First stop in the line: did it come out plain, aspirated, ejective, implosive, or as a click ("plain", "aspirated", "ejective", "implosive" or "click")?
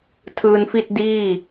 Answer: aspirated